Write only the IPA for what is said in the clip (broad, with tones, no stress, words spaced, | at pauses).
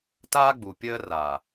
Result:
taː˦ɡ͡bu˨pʲəː˦raː˨